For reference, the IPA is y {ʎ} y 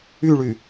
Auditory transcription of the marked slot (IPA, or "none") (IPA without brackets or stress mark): ɭ